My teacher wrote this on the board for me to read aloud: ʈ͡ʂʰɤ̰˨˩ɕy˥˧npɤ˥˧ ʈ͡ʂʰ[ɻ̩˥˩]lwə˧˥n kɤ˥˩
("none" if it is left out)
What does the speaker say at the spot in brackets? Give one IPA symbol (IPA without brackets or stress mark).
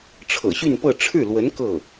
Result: ɻ̩˥˩